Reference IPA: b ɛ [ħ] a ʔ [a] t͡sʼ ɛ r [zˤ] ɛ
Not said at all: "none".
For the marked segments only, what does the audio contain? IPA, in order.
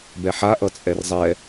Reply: ħ, ʌ, zˤ

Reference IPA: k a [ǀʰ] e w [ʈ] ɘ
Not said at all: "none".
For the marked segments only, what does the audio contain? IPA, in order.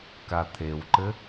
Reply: t̪ʰ, ǃ

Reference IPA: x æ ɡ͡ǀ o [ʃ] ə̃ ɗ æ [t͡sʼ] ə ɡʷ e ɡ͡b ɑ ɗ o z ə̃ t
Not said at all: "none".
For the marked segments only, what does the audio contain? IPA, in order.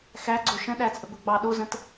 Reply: ʃ, t͡sʼ

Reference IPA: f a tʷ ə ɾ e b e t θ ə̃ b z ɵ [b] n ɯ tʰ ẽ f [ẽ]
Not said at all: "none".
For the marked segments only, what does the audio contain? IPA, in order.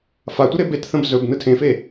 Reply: b, e

